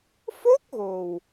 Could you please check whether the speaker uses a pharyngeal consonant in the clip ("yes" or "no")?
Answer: no